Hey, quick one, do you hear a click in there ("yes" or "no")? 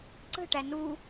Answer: yes